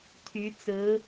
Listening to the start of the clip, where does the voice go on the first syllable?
rising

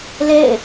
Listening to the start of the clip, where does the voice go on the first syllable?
falling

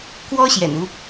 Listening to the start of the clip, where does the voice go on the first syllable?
high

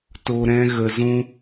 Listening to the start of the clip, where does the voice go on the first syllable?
low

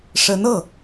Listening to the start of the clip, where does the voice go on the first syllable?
rising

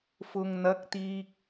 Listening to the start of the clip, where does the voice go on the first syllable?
low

